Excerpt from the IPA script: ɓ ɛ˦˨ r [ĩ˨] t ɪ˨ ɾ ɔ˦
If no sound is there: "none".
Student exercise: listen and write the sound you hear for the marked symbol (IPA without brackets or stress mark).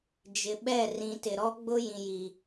ĩ˨